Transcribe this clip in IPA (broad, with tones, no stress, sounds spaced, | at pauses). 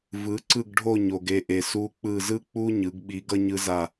v ɯ˩˥ ǀ ɯ˦˨ ɡ ɖʱ o˦˨ ɲ o˨ ɡ e˦˨ ʔ e˨ s u˧˥ k͡p ɯ˦˨ z ɯ˥ k͡p u˥ ɲ ɯ˩˥ ɡ ɓ i˧˥ ɡ ʌ˥ ɲ ɯ˧˥ z a˦˨